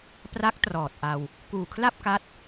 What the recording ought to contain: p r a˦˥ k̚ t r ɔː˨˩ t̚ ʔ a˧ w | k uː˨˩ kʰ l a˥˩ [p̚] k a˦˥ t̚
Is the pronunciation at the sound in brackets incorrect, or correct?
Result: correct